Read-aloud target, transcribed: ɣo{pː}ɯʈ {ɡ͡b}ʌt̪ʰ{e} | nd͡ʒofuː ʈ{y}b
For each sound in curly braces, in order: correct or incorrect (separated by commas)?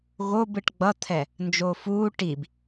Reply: incorrect, correct, incorrect, incorrect